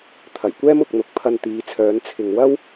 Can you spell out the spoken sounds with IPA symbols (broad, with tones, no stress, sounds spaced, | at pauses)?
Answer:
t̪ʰ ɐ˨˩ j kʷ ɛː˥ m ʊ˨ k̚ n̪ ʊ˨˥ k̚ pʰ ɐ˧ n t̪ iː˨˧ t͡sʰ œː˨˧ n t͡sʰ ɪ˨ ŋ w ɐ˥ w